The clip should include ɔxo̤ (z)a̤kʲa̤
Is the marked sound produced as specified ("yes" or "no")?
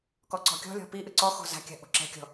yes